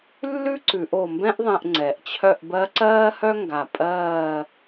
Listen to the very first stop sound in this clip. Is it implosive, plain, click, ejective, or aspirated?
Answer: click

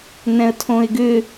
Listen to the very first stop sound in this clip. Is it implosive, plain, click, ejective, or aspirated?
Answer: aspirated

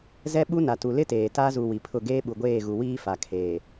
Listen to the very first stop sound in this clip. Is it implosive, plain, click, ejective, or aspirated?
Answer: implosive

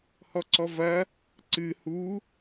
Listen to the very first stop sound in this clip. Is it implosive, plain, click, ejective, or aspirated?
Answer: click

